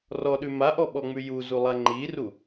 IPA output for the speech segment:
rɔɗʉ maʔɔɓɔŋ͡mʉ juzulˠa ŋ͡ǃiru

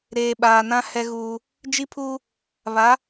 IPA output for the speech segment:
ɾeː˨ɓaː˨nã˦ hɛ˦ɣuː˦ | d͡ʒi˦pʰuː˦ | βa˨˦

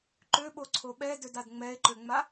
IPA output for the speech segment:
ǃøɓoǀʰo ɓɛdødad ŋ͡mɛe̯ǃøŋ͡ma

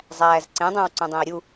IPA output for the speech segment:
zˤæːzǀẽ dˤõwǀũdˤẽi̯ɾʲu

